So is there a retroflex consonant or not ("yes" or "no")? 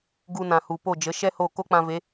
no